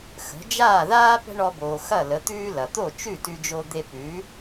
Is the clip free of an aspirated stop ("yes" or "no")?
yes